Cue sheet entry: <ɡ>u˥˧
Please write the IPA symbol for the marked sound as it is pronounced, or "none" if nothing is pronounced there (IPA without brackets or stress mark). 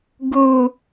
ɡ